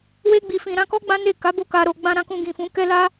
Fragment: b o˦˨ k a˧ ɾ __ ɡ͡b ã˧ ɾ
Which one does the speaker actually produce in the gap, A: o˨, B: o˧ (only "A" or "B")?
B